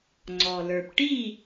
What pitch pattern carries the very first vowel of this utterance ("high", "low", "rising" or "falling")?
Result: low